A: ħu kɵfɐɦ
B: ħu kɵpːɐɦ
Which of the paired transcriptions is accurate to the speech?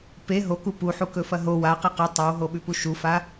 A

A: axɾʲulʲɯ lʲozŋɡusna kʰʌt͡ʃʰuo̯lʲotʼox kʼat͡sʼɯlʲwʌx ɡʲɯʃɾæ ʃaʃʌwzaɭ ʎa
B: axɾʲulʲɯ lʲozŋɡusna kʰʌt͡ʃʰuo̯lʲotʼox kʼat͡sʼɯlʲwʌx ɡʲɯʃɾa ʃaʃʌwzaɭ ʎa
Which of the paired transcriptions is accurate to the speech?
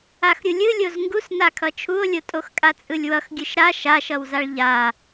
B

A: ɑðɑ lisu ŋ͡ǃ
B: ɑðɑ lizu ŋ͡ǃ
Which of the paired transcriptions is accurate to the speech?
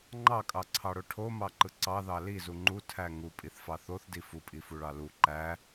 B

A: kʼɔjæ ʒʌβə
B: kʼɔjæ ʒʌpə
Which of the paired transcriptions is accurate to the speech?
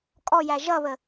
A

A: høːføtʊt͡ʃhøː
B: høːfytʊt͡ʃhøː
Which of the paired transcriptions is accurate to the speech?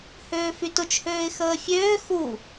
B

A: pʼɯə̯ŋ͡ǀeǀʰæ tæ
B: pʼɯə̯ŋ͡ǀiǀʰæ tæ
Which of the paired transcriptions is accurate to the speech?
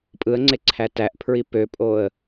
A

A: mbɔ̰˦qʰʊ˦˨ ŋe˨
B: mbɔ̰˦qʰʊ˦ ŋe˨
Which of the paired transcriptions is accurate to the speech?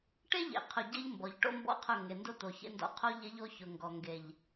A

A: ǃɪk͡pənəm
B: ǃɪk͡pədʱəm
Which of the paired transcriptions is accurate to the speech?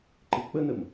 A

